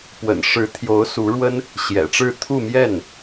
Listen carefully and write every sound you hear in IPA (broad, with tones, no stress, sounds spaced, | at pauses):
p w ə̰˨˩ n ʂ ɻ̩˧˥ t̪ʰ j o˧˥ ʊ̯ s u˧˥ ɻ w ə˥ n | ɕ j ɛ̰˨˩ ʈ͡ʂ ɻ̩˥˧ t̪ʰ u˥˧ m j ɛ˥˩ n